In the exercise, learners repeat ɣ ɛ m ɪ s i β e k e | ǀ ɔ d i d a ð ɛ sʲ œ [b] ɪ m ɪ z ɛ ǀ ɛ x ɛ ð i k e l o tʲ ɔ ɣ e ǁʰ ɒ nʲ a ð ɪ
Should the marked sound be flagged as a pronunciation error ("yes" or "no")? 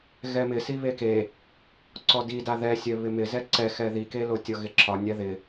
yes